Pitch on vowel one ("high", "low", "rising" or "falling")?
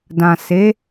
low